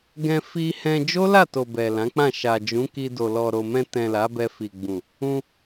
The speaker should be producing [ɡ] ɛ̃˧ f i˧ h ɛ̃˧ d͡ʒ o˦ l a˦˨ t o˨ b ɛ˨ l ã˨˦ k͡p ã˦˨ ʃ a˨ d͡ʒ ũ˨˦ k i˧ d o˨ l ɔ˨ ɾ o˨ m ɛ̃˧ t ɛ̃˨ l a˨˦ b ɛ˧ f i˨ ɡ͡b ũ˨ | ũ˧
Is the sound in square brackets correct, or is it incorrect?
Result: correct